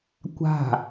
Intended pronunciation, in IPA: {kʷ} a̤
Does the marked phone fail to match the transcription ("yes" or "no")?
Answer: no